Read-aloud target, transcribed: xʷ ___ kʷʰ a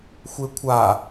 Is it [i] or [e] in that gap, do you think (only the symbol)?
e